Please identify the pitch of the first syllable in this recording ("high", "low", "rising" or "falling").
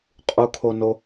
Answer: high